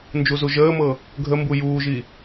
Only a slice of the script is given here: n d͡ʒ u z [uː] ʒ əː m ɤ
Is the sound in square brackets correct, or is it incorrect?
incorrect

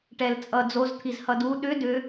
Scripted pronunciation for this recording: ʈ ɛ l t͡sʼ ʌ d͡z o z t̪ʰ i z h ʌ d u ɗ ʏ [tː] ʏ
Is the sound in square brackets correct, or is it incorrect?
incorrect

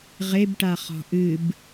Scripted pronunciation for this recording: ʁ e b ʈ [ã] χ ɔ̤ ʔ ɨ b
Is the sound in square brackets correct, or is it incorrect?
incorrect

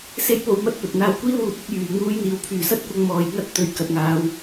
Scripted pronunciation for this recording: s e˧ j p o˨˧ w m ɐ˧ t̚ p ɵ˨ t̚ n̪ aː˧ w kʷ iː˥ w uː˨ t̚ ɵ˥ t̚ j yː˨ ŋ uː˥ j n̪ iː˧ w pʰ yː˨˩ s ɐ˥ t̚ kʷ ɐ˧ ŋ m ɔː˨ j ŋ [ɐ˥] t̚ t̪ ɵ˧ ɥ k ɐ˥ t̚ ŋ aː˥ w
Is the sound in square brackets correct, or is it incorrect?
correct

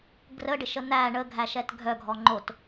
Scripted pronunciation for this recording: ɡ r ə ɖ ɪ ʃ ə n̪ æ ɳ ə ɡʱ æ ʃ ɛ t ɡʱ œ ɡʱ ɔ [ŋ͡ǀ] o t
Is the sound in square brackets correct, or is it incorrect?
incorrect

